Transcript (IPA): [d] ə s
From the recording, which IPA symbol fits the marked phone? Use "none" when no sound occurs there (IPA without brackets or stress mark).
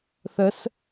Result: θ